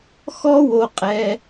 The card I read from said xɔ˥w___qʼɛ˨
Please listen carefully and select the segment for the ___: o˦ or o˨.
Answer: o˨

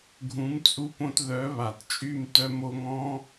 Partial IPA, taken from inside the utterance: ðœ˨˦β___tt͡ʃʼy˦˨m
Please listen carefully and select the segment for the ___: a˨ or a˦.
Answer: a˨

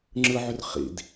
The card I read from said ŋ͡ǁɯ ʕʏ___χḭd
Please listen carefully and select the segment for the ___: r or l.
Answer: r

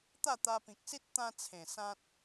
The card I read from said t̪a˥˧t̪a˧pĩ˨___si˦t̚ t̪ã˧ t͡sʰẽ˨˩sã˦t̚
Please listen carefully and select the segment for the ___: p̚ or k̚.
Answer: k̚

